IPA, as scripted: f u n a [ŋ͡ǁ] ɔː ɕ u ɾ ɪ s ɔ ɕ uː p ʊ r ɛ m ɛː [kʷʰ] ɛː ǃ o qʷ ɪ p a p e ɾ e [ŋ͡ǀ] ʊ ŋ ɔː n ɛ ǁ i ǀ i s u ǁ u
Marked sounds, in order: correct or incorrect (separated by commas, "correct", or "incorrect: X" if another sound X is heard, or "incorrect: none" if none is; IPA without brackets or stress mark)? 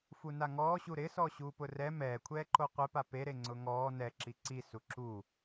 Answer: incorrect: ŋ, correct, correct